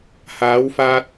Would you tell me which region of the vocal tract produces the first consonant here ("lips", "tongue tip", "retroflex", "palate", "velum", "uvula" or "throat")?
throat